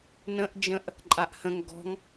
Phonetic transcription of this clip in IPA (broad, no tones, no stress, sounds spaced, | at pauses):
n ə̃ ʔ d͡ʒ ə̃ ʔ | ǃʼ a ʔ h ə̃ ŋ ɡ ɔ̤ ŋ